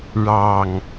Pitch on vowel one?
low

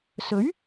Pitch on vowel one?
rising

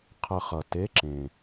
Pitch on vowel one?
falling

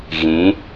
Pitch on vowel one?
rising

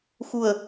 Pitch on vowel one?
low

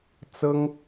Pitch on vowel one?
high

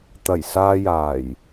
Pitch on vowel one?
low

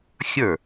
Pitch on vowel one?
falling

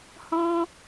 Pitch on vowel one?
high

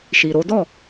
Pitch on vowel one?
low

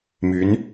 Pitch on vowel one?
rising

